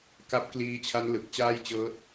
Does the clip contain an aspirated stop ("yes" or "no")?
yes